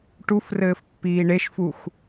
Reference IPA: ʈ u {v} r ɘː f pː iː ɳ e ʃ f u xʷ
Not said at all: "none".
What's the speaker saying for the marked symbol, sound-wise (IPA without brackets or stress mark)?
f